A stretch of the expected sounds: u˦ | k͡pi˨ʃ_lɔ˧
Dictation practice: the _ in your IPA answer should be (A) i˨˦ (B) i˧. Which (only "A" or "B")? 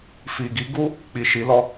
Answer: A